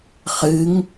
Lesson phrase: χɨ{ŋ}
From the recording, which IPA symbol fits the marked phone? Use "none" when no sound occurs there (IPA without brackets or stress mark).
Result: ŋ